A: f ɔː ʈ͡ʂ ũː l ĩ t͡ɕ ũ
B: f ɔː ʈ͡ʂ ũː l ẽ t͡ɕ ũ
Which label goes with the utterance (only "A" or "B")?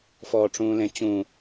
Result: B